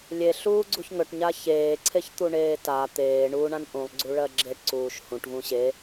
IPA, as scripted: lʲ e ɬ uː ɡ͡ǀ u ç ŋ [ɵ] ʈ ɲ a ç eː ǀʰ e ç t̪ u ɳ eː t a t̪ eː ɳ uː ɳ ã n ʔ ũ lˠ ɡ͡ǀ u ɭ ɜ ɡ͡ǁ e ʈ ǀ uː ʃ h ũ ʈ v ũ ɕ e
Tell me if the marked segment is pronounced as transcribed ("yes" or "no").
yes